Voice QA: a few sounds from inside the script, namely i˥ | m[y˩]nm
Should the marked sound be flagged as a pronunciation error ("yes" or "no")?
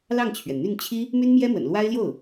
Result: yes